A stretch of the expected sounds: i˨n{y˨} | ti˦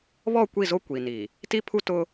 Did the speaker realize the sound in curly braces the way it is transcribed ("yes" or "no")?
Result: no